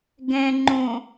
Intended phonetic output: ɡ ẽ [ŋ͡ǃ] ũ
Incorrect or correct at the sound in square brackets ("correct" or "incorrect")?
correct